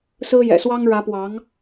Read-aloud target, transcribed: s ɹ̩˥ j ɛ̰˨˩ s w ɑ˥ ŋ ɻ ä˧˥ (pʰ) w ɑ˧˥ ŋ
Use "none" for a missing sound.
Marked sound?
p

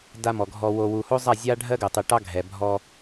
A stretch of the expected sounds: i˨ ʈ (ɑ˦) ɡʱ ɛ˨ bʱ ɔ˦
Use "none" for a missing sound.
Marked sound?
ɑ˦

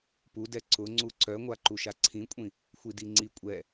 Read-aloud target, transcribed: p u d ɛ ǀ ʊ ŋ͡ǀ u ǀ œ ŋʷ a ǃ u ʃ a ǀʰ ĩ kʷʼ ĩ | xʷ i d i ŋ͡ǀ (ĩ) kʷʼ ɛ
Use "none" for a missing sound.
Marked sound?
i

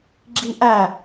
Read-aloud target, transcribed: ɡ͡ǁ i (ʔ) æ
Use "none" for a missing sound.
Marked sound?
ʔ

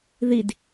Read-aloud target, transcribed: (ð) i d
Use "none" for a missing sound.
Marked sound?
ð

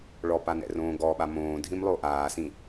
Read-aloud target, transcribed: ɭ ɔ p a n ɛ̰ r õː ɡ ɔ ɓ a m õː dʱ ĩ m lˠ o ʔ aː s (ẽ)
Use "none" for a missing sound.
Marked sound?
ĩ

